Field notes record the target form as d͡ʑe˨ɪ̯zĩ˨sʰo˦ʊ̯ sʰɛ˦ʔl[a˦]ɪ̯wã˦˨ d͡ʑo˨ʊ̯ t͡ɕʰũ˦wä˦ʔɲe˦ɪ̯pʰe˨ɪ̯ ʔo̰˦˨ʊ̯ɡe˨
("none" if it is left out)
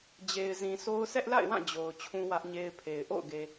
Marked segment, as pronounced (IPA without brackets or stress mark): a̰˦˨